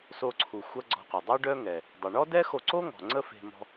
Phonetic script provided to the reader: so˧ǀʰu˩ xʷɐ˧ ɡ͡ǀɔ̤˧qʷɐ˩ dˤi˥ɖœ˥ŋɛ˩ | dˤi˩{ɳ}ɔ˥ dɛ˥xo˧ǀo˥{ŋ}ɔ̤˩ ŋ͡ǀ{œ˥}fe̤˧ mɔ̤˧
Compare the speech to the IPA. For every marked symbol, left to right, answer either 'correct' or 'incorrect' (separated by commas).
correct, correct, incorrect